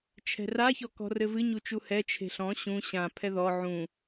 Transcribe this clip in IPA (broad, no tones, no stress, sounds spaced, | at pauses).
t͡ʃʰ ɛ̤ r a ç ɔ k ɔ̤ r ɘ v ɨ ɲ u t͡ʃ u h ɛ t͡ʃʰ e̤ ɬ ɔ̃ ɕ ũ ɕ ã pʰ ɛ ð ɔ ʕ ũ